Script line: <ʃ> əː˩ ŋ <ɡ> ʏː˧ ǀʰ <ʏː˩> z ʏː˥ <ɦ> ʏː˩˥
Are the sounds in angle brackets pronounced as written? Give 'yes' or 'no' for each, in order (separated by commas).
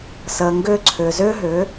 no, yes, yes, yes